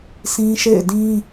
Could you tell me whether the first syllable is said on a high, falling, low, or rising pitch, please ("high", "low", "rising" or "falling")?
high